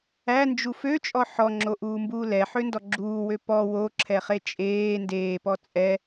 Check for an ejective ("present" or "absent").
present